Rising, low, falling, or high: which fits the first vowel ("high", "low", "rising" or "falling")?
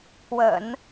low